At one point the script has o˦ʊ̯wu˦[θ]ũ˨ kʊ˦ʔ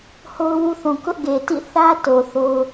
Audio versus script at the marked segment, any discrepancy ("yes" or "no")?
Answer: no